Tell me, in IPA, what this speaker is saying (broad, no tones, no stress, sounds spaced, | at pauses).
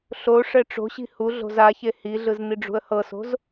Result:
ɬ o ʂ ɛ ʈ͡ʂ o̤ ɕ i̤ h u ɮ o̤ z a ç e h i ɮ ɯ z n̪ i ɖ͡ʐ ṳ ə̯ h ɤ s o̤ z